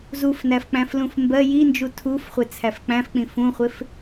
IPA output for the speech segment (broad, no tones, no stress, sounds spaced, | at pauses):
z u f n æ f k͡p æ̃ f l ũ f m b ɜ j i n d͡ʒ u tʰ u f χʷ ɪ t͡sʰ æ f k͡p æ̃ f k͡p ĩ f ũ χʷ ɪ f